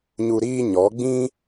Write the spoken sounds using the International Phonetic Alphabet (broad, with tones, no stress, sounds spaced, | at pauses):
ɲ u˧ ɾ iː˦ ɲ ɔ˨˦ ɡ͡b ĩ˦